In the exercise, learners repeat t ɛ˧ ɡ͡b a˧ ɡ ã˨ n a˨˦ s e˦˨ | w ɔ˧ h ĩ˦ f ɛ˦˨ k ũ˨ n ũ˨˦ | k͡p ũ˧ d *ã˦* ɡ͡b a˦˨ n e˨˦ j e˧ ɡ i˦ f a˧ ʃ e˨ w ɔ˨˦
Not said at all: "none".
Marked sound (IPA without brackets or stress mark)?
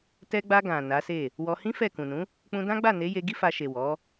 ã˦